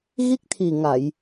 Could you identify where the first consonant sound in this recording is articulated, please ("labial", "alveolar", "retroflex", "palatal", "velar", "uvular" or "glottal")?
velar